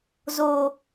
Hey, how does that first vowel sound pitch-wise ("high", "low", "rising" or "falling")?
low